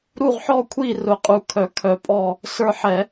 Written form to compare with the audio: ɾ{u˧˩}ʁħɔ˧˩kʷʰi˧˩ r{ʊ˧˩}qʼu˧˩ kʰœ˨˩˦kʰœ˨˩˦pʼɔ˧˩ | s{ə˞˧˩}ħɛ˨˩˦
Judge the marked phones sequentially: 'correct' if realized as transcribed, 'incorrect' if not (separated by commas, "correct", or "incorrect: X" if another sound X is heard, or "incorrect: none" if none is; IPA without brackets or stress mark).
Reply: correct, correct, correct